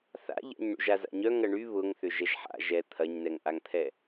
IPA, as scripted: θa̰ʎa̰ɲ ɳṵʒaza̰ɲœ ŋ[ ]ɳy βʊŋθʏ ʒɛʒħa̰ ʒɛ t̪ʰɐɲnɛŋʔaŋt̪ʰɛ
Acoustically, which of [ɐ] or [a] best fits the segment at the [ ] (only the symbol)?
ɐ